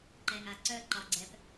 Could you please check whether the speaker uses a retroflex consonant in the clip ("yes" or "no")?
no